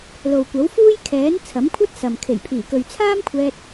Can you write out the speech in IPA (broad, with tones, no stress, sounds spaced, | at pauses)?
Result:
l o˨ w kʷ ɐ˨˥ w f uː˥ j kʰ ɛː˨˥ n t͡sʰ ɐ˨˥ m kʷʰ ɐ˥ t̚ s ɐ˨ m kʰ e˨˩ j pʰ iː˨˩ k ɵ˨ ɥ t͡sʰ aː˥ m kʷʰ ɛː˧ t̚